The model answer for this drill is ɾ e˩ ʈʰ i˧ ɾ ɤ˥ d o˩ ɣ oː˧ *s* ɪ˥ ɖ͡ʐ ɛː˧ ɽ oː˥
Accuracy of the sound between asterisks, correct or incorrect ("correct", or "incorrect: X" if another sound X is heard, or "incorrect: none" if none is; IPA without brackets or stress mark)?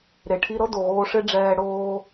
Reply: incorrect: ʂ